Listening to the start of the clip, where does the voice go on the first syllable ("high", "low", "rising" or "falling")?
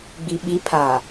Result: low